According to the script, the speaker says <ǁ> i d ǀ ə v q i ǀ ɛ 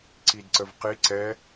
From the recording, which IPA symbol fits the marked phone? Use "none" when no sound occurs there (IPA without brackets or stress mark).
ǀ